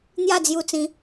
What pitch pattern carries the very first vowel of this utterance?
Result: falling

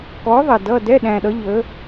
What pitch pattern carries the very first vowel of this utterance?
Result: rising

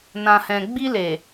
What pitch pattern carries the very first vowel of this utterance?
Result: low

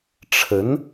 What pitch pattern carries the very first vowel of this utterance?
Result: rising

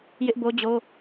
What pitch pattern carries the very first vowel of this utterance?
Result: high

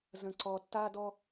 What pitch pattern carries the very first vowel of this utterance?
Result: low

